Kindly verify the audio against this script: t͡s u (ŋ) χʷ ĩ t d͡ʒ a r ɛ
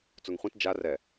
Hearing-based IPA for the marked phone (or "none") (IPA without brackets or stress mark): ŋ